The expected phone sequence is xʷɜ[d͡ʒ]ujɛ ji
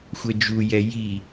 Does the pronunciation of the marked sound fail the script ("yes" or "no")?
no